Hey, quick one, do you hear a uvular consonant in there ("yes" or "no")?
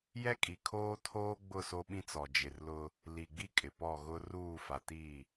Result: no